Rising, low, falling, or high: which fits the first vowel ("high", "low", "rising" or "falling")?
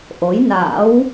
rising